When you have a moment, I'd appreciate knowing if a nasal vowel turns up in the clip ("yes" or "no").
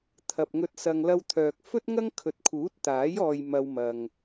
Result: no